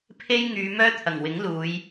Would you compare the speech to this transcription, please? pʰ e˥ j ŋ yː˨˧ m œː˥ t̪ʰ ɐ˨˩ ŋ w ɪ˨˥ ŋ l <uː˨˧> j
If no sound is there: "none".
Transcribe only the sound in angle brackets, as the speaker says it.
uː˨˧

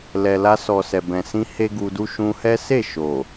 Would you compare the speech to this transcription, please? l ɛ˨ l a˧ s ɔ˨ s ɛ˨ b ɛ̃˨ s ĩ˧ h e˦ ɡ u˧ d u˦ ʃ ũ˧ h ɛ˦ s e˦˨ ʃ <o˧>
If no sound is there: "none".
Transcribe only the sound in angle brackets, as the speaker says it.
o˨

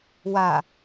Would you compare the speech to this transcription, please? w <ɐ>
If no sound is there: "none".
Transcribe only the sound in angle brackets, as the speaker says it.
a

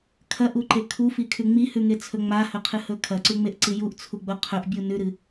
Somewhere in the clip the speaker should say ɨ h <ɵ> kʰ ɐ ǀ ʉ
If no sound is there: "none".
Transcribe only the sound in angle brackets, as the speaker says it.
ɵ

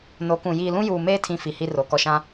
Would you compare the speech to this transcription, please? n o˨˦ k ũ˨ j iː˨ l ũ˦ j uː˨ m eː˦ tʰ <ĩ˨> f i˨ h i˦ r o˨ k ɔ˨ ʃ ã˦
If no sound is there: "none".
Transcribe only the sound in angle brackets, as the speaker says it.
ĩ˨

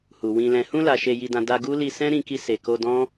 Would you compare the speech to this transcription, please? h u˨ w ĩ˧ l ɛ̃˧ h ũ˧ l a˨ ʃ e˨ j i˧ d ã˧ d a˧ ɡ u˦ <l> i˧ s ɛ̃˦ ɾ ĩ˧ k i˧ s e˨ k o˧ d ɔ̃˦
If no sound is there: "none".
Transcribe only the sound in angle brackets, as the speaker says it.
l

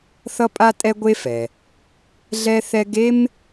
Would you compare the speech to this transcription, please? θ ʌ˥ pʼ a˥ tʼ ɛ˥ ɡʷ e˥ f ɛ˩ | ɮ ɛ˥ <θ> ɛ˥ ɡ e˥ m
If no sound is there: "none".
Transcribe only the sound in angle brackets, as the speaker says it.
θ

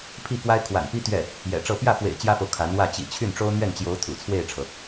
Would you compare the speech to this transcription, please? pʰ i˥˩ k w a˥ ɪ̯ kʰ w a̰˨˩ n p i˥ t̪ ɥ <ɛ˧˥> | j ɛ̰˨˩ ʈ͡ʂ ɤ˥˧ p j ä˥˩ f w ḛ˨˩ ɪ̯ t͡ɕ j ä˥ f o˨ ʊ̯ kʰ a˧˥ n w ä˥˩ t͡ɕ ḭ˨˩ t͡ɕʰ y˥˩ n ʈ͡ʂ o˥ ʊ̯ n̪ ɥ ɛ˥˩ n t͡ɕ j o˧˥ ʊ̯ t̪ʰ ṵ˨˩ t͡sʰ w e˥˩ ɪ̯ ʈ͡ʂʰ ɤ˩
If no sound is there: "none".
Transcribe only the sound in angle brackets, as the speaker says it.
ɛ˥˩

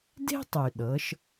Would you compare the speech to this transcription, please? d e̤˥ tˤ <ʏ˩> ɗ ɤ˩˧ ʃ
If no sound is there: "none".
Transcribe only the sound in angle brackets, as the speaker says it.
y˩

